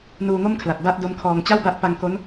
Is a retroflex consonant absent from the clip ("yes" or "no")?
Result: yes